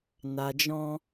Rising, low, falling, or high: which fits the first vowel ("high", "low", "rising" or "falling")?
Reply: low